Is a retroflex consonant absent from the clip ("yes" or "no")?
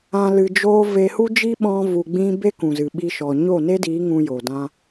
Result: yes